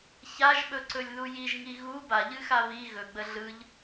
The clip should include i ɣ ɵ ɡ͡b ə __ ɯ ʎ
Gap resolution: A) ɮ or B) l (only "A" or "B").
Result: A